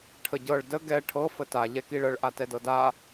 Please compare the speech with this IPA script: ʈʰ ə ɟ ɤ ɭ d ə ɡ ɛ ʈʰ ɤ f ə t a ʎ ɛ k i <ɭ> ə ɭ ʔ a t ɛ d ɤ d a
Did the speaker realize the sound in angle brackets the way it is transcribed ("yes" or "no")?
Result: yes